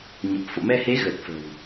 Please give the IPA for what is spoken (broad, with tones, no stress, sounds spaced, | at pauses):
ɲ ə˨˩ p̚ f o̰˧˨ m ɛ˧ h e˨˦ ɣ ə˨˩ t̚ f ə̤˨˩ w